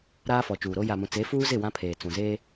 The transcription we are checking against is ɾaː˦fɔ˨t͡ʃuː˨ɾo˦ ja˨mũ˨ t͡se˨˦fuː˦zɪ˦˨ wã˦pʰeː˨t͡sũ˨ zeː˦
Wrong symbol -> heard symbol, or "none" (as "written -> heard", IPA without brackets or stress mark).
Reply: none